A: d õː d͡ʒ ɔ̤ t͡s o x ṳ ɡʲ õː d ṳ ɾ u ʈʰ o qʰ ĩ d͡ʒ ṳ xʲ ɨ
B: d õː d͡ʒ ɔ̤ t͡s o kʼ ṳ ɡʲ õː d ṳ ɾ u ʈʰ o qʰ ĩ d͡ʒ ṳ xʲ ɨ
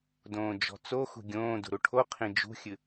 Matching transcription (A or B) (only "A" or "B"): A